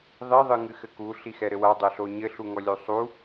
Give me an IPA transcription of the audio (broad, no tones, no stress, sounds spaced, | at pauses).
ðˤ i ðˤ ɨ ŋ ɨ x ɘ k u ɬ i x ɛ ɾ ɘ w a dˤ ɛ ɬ o ɲ ɘ ɬ u ŋ ɔ lʲ u sˤ u